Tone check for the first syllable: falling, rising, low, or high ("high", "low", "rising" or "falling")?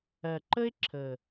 low